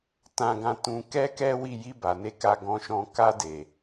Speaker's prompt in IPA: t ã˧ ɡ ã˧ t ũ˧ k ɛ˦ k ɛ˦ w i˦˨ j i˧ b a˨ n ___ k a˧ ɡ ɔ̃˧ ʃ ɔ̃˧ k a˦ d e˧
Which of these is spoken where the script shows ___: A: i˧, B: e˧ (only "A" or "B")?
B